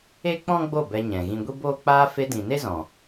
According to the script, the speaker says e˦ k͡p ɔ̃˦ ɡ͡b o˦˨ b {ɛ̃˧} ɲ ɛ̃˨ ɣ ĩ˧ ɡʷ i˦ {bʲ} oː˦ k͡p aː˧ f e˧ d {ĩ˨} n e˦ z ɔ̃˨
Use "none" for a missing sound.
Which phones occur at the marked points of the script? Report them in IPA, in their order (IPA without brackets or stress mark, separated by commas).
ɛ˧, b, ĩ˨